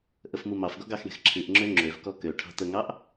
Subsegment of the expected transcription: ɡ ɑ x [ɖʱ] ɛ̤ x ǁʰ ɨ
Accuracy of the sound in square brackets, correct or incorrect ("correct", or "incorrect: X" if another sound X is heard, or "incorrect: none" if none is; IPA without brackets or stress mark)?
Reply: incorrect: ɳ